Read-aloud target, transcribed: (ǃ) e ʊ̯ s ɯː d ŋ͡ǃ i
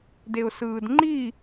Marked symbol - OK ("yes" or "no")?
no